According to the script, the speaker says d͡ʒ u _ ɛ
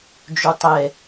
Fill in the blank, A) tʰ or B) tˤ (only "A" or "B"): B